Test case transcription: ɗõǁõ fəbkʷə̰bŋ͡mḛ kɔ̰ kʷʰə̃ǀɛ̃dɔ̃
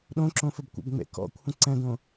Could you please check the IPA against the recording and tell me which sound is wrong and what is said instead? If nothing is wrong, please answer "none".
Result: ɔ̃ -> õ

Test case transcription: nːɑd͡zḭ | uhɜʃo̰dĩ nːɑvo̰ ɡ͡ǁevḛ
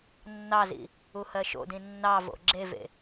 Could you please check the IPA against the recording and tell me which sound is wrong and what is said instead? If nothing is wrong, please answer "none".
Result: d͡z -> z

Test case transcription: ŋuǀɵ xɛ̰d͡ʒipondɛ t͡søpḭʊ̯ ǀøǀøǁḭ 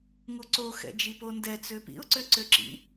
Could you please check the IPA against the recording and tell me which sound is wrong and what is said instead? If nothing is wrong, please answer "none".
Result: ɵ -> o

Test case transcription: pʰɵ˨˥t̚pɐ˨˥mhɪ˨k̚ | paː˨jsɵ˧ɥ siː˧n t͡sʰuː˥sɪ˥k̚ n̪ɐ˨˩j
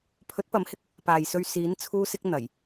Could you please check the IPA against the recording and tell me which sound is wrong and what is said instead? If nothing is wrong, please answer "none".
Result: iː˧ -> iː˨˥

